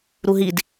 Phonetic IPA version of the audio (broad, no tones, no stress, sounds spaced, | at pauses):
ɾ u ɦ i d